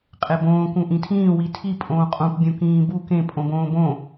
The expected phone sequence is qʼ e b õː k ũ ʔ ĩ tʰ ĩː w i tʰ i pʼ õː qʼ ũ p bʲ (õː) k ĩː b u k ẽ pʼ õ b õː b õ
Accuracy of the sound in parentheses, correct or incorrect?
incorrect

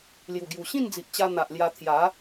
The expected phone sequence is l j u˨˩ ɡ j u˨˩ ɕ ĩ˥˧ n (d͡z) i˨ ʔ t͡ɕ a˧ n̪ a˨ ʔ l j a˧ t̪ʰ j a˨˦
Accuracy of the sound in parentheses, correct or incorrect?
correct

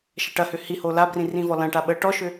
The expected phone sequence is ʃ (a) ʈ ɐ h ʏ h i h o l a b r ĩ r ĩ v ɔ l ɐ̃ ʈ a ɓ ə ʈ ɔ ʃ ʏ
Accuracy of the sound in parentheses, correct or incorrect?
incorrect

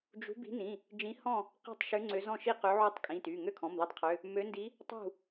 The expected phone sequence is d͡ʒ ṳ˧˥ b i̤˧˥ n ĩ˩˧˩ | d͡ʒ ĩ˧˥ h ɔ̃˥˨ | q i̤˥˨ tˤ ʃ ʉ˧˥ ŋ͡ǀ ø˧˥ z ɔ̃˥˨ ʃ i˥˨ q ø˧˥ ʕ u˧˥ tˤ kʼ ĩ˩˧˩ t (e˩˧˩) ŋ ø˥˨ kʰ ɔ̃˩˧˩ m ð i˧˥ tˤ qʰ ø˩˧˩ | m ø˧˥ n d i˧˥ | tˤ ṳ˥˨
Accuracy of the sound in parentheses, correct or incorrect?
incorrect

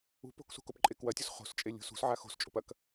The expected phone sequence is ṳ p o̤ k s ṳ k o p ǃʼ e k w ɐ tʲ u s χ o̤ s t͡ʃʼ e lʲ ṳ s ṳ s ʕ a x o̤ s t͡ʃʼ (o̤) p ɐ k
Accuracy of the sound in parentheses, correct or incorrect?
correct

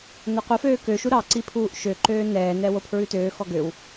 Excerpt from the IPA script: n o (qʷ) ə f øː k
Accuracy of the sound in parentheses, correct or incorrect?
correct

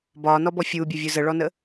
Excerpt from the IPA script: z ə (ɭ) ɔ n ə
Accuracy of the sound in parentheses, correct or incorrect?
correct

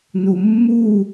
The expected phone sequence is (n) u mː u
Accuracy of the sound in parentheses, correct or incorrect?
correct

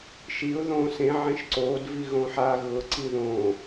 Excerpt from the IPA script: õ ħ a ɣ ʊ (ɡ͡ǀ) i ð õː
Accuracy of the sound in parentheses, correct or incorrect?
incorrect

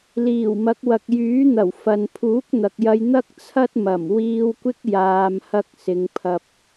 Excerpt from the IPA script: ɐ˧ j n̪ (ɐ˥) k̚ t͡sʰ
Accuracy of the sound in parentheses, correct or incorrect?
correct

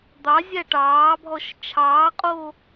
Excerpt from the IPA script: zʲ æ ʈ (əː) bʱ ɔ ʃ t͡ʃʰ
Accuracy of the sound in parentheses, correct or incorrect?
incorrect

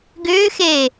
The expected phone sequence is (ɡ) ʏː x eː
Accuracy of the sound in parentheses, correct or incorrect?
correct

